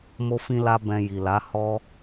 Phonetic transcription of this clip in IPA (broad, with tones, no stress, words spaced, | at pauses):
mo˦fĩ˦la˦ bɛ̃˧ji˨la˨˦ hɔ˦